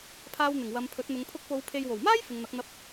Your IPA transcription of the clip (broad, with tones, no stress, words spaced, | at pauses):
pʰaː˧wn̪ɪ˨˩ŋ wɐ˨˧mpʰɵ˨˥t̚n̪ʊ˨˧ŋ pʰʊ˧k̚po˨˧w pʰe˨jwo˨˩wmaː˥j fɪ˨˧ŋn̪ɐ˨˥k̚n̪ɐ˧p̚